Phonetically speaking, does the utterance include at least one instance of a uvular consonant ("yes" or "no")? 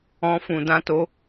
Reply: no